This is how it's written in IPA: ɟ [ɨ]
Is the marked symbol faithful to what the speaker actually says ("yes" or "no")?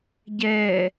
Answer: no